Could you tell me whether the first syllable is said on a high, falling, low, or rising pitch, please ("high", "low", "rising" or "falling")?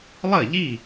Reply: falling